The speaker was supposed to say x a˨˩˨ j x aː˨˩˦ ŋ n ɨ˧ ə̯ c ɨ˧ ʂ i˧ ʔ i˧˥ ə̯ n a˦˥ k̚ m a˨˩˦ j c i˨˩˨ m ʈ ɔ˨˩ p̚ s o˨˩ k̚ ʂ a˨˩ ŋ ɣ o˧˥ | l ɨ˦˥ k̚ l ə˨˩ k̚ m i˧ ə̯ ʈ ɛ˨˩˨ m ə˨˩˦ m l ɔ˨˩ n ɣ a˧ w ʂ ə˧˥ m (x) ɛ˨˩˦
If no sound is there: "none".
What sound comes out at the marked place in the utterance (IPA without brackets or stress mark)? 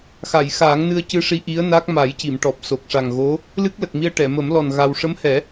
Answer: h